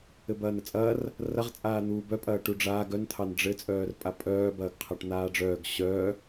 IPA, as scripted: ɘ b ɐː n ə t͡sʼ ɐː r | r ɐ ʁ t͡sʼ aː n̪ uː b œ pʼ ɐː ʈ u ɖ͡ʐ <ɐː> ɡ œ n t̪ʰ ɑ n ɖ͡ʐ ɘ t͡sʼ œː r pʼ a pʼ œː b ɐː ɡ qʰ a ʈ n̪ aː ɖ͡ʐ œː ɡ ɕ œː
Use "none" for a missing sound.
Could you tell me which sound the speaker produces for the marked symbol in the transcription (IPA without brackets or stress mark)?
aː